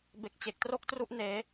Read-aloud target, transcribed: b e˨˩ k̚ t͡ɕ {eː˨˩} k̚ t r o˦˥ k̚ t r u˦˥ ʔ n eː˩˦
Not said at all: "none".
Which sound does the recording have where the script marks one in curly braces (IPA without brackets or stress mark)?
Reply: e˨˩